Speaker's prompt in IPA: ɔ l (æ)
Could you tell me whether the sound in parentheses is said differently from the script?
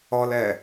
yes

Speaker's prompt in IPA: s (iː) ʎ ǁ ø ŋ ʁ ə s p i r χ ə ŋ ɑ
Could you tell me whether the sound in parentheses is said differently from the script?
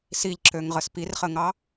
yes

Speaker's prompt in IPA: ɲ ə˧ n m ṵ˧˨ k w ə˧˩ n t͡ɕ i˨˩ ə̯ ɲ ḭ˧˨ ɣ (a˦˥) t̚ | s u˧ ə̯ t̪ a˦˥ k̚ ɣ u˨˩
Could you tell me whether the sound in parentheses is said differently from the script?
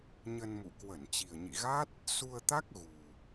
no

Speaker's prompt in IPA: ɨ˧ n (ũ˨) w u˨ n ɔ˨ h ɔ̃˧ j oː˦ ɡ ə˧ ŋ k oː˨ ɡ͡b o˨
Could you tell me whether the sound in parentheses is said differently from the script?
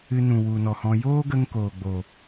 no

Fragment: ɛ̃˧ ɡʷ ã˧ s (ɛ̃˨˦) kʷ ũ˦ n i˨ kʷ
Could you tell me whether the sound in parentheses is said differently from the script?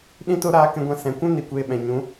yes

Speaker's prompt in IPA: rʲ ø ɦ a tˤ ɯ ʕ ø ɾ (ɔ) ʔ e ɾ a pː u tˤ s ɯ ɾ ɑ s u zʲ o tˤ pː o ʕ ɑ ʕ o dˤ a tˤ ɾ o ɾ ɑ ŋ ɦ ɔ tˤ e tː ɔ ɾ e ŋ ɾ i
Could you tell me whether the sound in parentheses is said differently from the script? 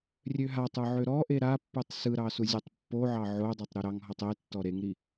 no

